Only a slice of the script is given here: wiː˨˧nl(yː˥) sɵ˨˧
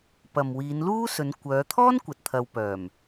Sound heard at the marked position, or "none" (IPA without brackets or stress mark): uː˥